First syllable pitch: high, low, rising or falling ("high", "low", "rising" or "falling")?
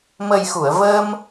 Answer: low